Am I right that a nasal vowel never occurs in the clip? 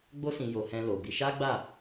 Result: no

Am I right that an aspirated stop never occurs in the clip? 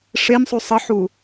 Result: yes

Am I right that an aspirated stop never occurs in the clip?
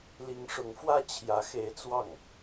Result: no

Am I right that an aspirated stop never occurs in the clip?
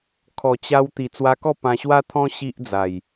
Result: no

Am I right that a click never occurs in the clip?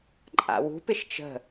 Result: no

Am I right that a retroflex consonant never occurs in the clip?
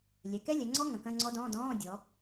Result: yes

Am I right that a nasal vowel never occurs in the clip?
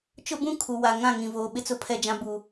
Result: no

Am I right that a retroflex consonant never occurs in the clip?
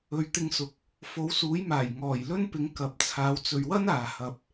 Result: yes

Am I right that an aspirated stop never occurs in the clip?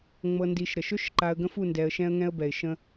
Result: yes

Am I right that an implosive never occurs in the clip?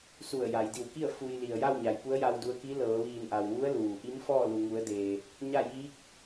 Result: yes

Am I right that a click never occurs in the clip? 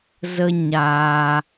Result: yes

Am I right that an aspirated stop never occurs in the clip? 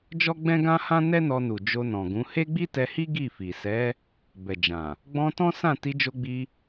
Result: yes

